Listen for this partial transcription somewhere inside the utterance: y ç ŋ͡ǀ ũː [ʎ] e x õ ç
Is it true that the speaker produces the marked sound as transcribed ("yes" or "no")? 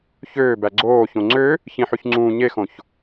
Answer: no